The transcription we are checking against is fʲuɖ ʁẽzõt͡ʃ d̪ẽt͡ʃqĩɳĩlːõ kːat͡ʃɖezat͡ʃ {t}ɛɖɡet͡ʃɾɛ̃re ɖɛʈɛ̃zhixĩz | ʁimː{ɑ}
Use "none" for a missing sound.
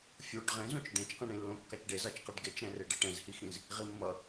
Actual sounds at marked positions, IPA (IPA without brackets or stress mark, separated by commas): q, ʌ